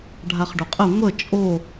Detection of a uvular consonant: present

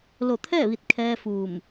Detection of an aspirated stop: present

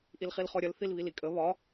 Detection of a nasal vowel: absent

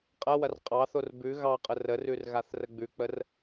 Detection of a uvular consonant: present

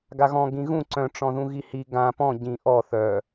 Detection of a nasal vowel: present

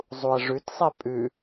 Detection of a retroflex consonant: present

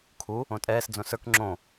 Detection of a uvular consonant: absent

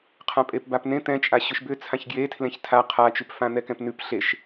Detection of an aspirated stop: present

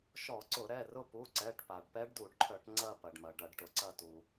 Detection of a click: present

